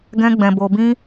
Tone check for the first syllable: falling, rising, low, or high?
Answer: high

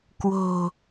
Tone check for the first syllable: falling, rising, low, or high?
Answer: low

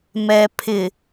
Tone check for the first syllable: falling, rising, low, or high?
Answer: low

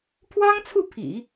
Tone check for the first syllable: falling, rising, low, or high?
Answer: high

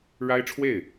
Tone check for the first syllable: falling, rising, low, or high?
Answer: high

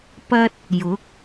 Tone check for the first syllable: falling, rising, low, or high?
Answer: high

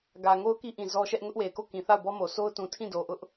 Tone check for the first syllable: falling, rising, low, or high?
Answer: low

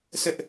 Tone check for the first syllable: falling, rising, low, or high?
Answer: high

